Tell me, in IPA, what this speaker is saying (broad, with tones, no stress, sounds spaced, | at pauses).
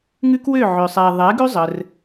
ŋ ʉ˦ k w ø˦˨ ʕ ø˨ sˤ ɛ˨ ðˤ ɛ˨˦ ɡ ʉ˦ zˤ ə˧ r